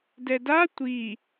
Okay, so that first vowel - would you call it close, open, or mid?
mid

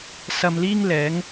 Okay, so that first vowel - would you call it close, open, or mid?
open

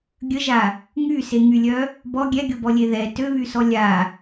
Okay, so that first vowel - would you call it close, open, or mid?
mid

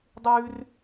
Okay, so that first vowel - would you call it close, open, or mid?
close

